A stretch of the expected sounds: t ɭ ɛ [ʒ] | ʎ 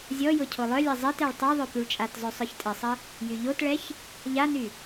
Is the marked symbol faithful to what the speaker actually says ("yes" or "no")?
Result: no